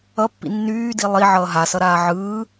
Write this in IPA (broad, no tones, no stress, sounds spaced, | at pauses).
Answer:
ʌ pː ḭ nː yː d i lˠ i ʕ ʌː ɦ a s ʌ ɾ aː ʕ ɯː